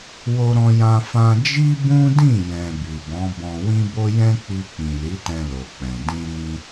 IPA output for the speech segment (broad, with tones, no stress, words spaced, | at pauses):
wo˧ɾɔ̃˧jã˧ fã˧d͡ʒi˦bũ˦ dĩ˦˨jɛ̃˨ bi˨bɔ̃˨˦bɔ̃˧ wĩ˦bo˦ jɛ̃˦k͡pi˧k͡pĩ˨ li˨˦tɛ̃˧lo˨k͡pɛ̃˨ dĩ˧ ɾĩ˧